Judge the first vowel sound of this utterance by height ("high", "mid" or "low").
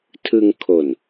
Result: high